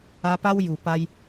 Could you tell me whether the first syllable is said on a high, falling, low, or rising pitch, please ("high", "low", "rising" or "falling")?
high